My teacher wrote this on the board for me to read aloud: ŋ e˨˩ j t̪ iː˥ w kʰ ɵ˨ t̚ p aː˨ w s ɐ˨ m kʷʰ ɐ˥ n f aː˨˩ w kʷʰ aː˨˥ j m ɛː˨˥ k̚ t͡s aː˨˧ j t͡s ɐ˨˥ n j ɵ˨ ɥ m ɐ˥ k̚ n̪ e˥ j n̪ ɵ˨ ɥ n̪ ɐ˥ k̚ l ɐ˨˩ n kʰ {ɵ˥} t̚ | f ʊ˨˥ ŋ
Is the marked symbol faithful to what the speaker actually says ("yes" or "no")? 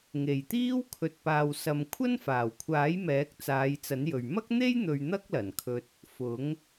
no